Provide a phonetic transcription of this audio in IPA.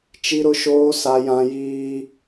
t͡ʃi˦ɾʊ˦ʃoː˦ sa˦jã˦ jiː˦

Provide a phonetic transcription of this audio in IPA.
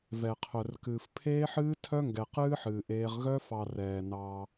vɛ˨qʰœ˨rkɨː˨f pʰeː˦ħɨː˦ tʰœ˦ŋɡɛ˨qɨː˦ħɨː˨ ʔeː˦ʁ ɣœ˦fɑ˨ rɛː˨ nɑ˦

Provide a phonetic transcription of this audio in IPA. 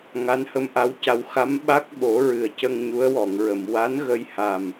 ŋa˧˥nhə˧mʔa˧˥wca˧w xa˧˥mɓa˦˥k̚ɓo˨˩˦ ɹɨ˨˩ə̯cə˧ŋ ɲu˧˥ə̯wɔ˨˩˨ŋɹə˨˩˨m wa˧˥nɣə˧jha˨˩m

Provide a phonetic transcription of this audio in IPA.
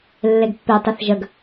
lːeɡpːetˤeθ ʒəɡ

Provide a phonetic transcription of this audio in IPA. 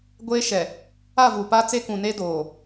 ɡʷeː˦ʃɛ˨ | a˦˨vuː˨paː˦ t͡se˦kũ˨ne˦ doː˨

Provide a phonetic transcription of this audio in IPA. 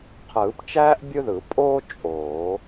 qʰɯː˨˩˦pt͡ʃæː˥ʔ bʲɯ˥ðɯ˨˩˦ pʼoː˥ t͡ʃʼoː˨˩˦

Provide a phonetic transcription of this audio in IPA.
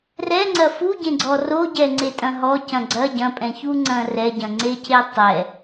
rɛŋ͡ǀɐ fuɟẽɡ͡ǀɔ roɟɛŋ͡ǀetʼɐ̃ ɦɔcɐ̃ ɡ͡ǀɐ ɟɐ̃pʼɛ̃çuŋ͡ǀɐ̃ rɛɟɐ̃ŋ͡ǀecʰe tˤɛ

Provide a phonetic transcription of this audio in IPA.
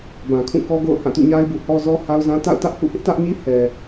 bã˨kʰũ˦˨ kɔ˦ɡo̰˦˨ʊ̯hã˦˨ tṵ˦˨ɲa˦ɪ̯bu˨ hɔ˦zɔ˦ha˦ʊ̯zã˦ ta̰˦˨ʊ̯tä˦ʔ hṵ˦˨hɪ˦ʔtä˦ʔɲi˦ hɛ˨

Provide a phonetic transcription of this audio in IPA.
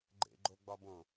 ɡ͡ǃḛɡ͡ǃoɡ͡bɒbõ

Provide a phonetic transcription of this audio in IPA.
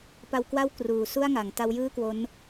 pa˧wkwa˥˩w kruː˨˩ su˥˩a̯ŋa˩˦ŋ ta˦˥wjɯː˥˩kwo˦˥n

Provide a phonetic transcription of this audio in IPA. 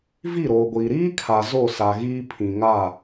vi˦˨ɾoː˨ɡʷiː˨ ɾiː˦kʰa˨ zo˦˨sa˨ɣiː˦ pʰĩ˨ŋa˦˨

